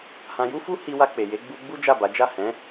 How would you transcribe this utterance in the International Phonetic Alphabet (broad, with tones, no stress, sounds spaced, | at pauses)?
h ã˧ j u˦ f u˦ h i˧ w a˧ k͡p e˨ j e˨˦ ɡ͡b u˧ ɡ͡b u˦ d͡ʒ a˦˨ b a˨˦ d͡ʒ a˦˨ h ɛ̃˨˦